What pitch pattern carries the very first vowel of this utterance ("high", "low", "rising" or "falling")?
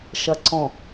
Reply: low